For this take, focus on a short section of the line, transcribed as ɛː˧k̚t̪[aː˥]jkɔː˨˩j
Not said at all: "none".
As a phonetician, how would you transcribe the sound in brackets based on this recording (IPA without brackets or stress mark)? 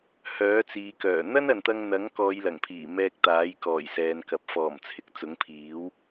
aː˨˥